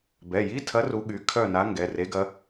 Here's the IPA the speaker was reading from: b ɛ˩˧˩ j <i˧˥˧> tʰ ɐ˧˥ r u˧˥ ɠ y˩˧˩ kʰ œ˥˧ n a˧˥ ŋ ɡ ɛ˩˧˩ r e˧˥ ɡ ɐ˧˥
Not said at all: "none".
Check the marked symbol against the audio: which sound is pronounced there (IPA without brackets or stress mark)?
i˧˥˧